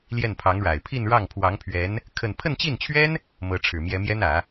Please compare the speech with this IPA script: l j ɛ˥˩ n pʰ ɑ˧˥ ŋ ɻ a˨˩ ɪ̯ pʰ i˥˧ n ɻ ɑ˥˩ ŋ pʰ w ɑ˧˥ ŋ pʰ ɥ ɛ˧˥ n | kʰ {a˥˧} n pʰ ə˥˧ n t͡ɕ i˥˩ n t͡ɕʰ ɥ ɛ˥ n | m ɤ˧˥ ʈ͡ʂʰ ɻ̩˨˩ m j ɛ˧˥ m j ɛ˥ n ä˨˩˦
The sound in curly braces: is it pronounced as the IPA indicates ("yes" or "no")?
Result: no